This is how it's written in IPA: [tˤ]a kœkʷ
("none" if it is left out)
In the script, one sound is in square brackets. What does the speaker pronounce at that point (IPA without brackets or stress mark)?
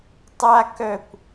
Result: tˤ